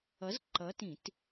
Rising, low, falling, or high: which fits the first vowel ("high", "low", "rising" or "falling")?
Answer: rising